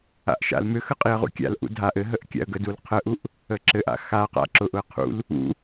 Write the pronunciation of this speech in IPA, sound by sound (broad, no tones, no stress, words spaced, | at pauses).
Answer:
a̰ʔʃa̰lmʏxə qʼiə̯ʁṵkʲa̰lʔṵ dʱaʔ ɘɦəʔ kʲa̰ə̯ɡədul qʰəʔuʔ | əǁɘʔa̰ xa qa̰ǁʊʔʊə̯ qʰṵl | ṵ